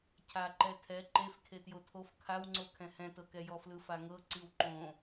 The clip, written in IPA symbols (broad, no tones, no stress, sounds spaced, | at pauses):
cʰ a ǃ ɛ tʰ ɛ ǃ e f kʰ e t j o tʰ o f kʰ a w ŋ͡ǀ o kʰ ɛ̃ h ɛ̃ t ɤ k ɛ j ɔ f l ɯ f a ŋ ɤ ǀ i w ǃ õ